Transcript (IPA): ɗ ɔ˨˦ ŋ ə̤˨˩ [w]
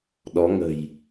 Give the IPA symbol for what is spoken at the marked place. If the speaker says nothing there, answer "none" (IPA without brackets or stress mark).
j